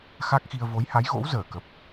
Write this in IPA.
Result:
x a˦˥ k̚ x i˧ ə̯ v o˨˦ j h a˨˦ j ɣ o̰˧˥ w z əː˧˩ k ə˨˩ p̚

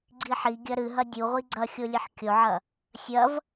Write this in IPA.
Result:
ɡ͡ǀ i ħ i ɡʲ ɐ ɾ ɨ ɦ ɐ dʲ u ʁʷ i ɡ͡ǀ ɐ xʲ o lʲ ɨ ħ kʲ o ʕ ɐ | sʲ ɐ v

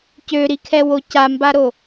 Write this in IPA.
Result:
c ø ɾ i kʰ ɛ w o c a m b a ɾ o

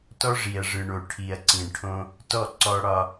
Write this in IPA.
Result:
t ɔ˦ ʐ i˨ ɐ̯ ʐ ɯ˨ ɳ o˨ ʈʰ i˨ ɐ̯ ǀ ĩ˨ ɳ ʈʰ õ˦ | t ɔ˦˨ ǀ ɔ˦ ɽ ɒ˦

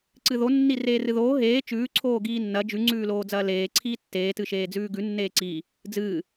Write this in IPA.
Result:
ǀ ɨ ð o nː i r eː r ɨ ð oː ɦ eː t͡ʃ ʉː ǀʰ oː ɡ iː nː ɐ d͡ʒ ʉ ŋ͡ǀ ʉː l oː d͡z ɐː l eː ǀʰ iː tː eː t ɨ ʃ eː d͡z ʉː ɡ ʉ nː eː ǀ iː | d͡z ɨː

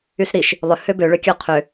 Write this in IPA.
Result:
y s ɾ i ʃ | lˠ ʏ h ø b ø ɭ ø kʲ ɔ qʰ ø

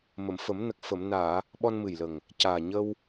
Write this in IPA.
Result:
m ə˨˩˨ m f ə˨˩˦ m n ə˨˩ k̚ f ə˨˩˨ m n aː˨˩˨ | ɓ ɔ˧ n m ɨ˨˩ j l ə˨˩ ŋ | c aː˨˩ ɲ ə˧ w

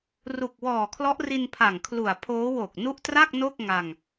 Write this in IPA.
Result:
r u˨˩ k̚ w ɔː˨˩ kʰ l ɔ˦˥ ʔ r i˧ n pʰ a˨˩ ŋ kʰ l u˨˩ a̯ pʰ oː˦˥ w o˨˩ k̚ n u˦˥ ʔ t r a˥˩ k̚ n o˥˩ k̚ ŋ a˧ ŋ

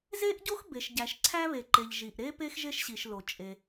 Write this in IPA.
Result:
z e˥ ʔ ɟ o˥ x b e˩ ʃ ɟ æ˩ ʃ ǀʰ æ˥ β e˩ ǃ e˩ ʎ ʒ i˩ ʔ ɾ e˥ p e˥ x ʒ e˥ ʃ ɕ i˩ ʃ l o˩ t͡ʃʼ e˩

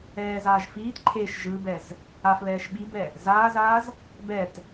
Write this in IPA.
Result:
ɛː z aː ʒ f iː t ǃʰ e ʃ ʒ ɯ b ɛ z | a f β ɛː ʃ ɓ i b ɛ | z aː z aː z | b ɛ t

